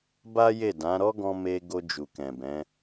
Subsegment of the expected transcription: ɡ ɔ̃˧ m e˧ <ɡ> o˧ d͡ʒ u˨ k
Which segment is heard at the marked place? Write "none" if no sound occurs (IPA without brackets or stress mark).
ɡ